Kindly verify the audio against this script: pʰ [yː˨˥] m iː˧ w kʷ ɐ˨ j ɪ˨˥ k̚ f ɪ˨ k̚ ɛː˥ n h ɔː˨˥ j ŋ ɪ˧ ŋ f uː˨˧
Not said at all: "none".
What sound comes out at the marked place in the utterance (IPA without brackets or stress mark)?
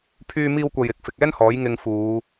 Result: yː˧